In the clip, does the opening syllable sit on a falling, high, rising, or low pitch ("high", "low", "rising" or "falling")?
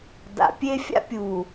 low